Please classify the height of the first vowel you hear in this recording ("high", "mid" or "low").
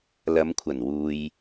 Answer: low